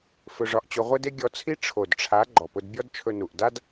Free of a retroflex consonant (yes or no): no